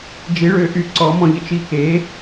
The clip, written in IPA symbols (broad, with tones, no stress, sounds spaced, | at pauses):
d͡ʒ i˧˥ ɭ ø˧˥ ʔ y˦˨ ǀ ɔ˧˥ m ɔ̃˥ ʎ ə˥ t͡ʃ i˥ k eː˧˥